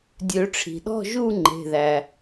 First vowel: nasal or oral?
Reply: oral